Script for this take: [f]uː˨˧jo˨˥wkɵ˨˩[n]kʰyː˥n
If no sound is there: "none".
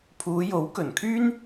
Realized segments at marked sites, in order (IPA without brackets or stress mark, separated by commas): pʰ, n